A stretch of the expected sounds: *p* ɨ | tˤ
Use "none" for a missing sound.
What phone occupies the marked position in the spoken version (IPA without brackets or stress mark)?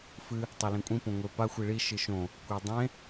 f